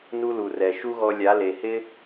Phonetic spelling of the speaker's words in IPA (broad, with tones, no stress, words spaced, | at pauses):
nu˦lu˨rɛ˨ ʃu˦ɣɔ˧ lʲa˨˦ le˨hɪ˦